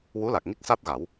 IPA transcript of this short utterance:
wu˧˥la˨˩k̚ŋi˦˥k̚ sa˦˥t̚ɣa˨˩˦w

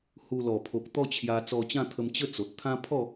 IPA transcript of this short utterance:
hu˧ lɔ˨˩pʰo˨k̚ t̪ɔ˥˧t͡ɕʰja˧ t͡sɔ˧t͡ɕã˥˧ t̪ʰə˧m t͡ɕə˥˧ t͡so˨t̚ t̪ʰã˦ pʰɔ˥˧

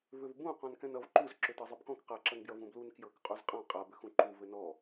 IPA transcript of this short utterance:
vʏvbũ qɔ̃nkɛ̃nʌv ǃuz ǁʏtɤzˤʌbkɔ̃k qaǁʌnbjʌ vũblun kjɤkqʼuz qʼã qʼabʏxũ ǃu vɘnɔ

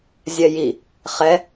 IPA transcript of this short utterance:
zʲɛji | χɛ

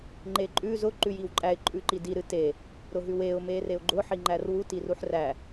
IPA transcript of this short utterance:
ŋ͡ǃeǃʼʉ zʊ ǃʉjiwǃʼæɪ̯ ǃʼʉǃidi ɾɨte | ɾʊɦʉweʊ̯ mereʊ̯ɡ͡ǃʊ ħiŋ͡ǃærwu tiruħræ

